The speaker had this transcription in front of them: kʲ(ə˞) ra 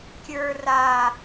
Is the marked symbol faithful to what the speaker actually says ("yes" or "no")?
yes